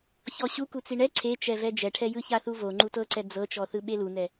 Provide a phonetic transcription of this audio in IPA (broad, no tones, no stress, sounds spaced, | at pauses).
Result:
ç ɔ ɕ u k u t͡s i ɳ ɛ ǀʰ e t͡ʃ ɛ v ɛ d͡ʒ ɛ ʈʰ ɛ j ɯ ç a θ u v o ŋ͡ǃ u t ɤ ǀ ɛ d͡z ɤ t͡ʃ ɔ θ ɯ ɓ e l u n ɛ